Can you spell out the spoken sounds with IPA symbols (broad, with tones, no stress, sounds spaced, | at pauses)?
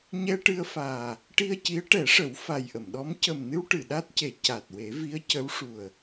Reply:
ɲ ɛ˧ ʈ ɨ˧ ə̯ f aː˨˩ | ʈ i˧ ə̯ c i˧˥ ə̯ ʈ ɛ˨˩˦ ʂ ə˨˩˦ w f a˨˩ j ʔ ə˨˩˨ m ɗ ɔ˧˥ m c ə˨˩ m n ɨ˧ w ʈ ɨ˨˩˨ ɗ a˦˥ t̚ c e˨˩˨ c a˨˩ t̚ w e˨˩˦ v i˧˥ ə̯ c ə˧˥ w ʂ u˨˩ ə̯